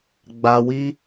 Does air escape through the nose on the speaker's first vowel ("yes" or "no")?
no